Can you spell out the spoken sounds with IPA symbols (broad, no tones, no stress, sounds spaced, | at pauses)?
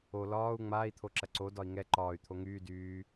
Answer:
o l ɒː u̯ ŋ͡m aː i̯ t̪ʰ o ǁ ɐ ǀ o d ɒ i̯ ŋ ɛ ǃ ɒː y̯ t̪ʰ o ŋ yː d yː